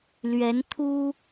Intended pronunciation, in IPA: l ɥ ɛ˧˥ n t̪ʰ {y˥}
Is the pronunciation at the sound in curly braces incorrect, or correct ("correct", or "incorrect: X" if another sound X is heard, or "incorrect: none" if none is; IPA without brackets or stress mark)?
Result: incorrect: u˥